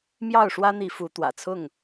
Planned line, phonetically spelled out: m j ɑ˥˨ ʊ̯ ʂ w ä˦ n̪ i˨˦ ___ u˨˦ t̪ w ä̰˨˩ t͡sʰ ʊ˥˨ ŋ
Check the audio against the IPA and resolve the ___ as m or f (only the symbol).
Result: f